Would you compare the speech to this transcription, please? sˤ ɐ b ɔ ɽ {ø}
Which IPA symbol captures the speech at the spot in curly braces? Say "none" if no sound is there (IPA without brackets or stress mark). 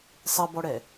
ɛ